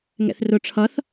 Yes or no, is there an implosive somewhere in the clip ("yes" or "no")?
no